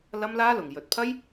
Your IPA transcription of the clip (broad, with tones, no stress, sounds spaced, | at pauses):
l ɐ˥ m l aː˥ l ʊ˨ ŋ j ɵ˨˥ t̚ pʰ ɐ˥ j